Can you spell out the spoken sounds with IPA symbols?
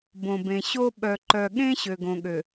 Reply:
b õ˨ b ẽ˨ ɕ o˦ ɓ œ˨ ǃ œ˨ ɠ ẽ˦ ɕ ø˨ ɡ õ˨ ɠ ø˨

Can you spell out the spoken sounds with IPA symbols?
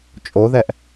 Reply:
t͡ʃʼ o ð ɛ ʔ

